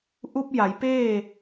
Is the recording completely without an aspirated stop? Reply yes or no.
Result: yes